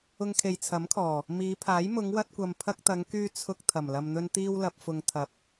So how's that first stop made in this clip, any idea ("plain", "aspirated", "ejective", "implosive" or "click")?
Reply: aspirated